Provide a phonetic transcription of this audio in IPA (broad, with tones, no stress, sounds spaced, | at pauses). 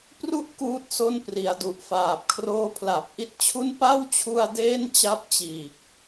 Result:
p r u˦˥ ʔ k uː˦˥ t̚ s o˦˥ n p r i˩˦ a̯ d u˨˩ ʔ f aː˨˩ p̚ kʰ r oː˦˥ pʰ l a˨˩ p̚ ʔ i˦˥ t̚ t͡ɕʰ u˥˩ n p a˥˩ w t͡ɕʰ u˧ a̯ d eː˥˩ n t͡ɕ a˦˥ p̚ t͡ɕ iː˨˩ k̚